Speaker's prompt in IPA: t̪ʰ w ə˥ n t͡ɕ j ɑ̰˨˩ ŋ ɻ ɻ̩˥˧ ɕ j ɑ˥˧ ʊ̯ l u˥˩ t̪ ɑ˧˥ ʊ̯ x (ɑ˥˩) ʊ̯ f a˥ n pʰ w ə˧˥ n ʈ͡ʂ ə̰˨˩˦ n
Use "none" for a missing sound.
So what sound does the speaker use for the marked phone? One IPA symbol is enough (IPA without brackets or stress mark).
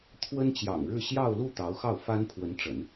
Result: ɑ˥˩